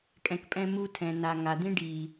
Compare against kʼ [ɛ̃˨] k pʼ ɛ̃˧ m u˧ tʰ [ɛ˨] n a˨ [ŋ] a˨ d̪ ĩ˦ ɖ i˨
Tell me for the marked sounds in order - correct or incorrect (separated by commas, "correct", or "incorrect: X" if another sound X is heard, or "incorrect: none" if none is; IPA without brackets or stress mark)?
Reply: correct, incorrect: ɛ̃˨, correct